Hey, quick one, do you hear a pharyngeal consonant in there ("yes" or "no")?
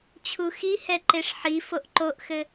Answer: yes